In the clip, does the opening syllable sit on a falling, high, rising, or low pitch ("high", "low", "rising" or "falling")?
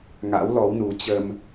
rising